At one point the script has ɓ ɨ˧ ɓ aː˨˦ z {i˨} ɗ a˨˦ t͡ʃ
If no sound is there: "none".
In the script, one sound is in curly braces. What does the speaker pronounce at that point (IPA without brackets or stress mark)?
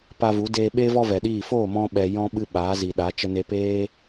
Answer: i˨